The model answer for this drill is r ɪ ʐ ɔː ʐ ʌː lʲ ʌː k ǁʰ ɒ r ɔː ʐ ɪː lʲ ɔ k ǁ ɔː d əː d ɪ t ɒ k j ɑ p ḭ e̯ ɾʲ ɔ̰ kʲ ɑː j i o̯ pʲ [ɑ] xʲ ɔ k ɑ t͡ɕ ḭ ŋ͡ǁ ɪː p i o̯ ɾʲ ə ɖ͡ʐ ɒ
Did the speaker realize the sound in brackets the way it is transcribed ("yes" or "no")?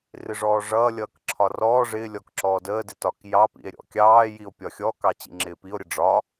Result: no